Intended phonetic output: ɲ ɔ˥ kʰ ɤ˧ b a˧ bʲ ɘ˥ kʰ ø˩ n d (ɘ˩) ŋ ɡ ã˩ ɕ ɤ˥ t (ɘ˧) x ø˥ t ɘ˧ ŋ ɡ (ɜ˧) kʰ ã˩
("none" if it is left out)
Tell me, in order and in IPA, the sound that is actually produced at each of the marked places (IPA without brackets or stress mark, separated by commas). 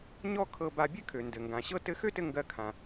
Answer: ɘ˩, ɘ˧, ɜ˧